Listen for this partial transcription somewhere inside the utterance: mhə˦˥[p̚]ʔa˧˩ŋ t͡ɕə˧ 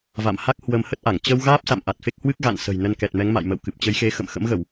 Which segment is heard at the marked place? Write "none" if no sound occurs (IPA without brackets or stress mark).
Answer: t̚